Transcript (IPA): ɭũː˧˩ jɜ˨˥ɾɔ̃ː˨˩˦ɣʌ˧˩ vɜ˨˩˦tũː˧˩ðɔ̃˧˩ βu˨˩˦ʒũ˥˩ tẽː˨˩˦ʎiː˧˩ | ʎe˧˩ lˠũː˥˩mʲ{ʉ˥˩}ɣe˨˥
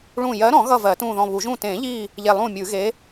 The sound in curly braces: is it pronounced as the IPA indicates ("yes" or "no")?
no